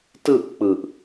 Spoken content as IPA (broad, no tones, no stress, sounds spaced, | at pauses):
t ɯ ʔ k͡p ɯ ʔ